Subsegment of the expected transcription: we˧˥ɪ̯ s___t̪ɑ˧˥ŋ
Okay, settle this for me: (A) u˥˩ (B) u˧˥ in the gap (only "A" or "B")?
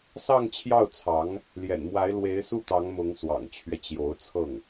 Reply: A